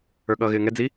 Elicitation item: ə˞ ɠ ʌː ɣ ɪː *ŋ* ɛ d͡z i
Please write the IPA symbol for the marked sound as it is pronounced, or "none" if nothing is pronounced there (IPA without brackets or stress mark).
ŋ